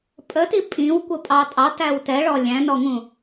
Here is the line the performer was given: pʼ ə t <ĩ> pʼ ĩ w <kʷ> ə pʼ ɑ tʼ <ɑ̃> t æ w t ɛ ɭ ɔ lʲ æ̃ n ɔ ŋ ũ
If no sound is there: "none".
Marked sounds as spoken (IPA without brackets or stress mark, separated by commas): i, kʷ, ɑ